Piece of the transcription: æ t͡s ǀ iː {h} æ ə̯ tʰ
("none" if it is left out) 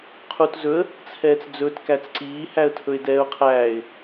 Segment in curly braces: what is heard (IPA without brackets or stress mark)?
h